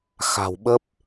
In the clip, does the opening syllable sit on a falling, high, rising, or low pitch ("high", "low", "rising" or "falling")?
low